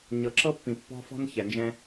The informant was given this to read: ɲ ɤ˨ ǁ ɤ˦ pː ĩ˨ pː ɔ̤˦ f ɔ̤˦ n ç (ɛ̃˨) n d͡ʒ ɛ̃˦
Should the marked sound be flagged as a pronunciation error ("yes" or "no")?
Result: yes